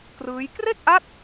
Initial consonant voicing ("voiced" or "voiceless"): voiceless